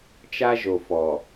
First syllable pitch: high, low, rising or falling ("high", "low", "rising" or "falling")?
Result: high